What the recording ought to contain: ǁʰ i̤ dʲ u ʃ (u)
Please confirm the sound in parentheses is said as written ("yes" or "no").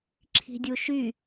no